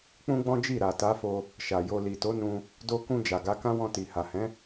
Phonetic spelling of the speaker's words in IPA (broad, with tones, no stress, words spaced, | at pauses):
k͡pũ˦ɡ͡bɔ̃˦d͡ʒi˦˨ ɾa˨ta˨˦fo˧ | ʃa˨jo˧ li˨to˨˦nũ˧ | do˧kũ˧ d͡ʒa˨ɡa˨˦kã˦ wɔ̃˧ti˨ha˨hɛ̃˨˦